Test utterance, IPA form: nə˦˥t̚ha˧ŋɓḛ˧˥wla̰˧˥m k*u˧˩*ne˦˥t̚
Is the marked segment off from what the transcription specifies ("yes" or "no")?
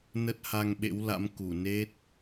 no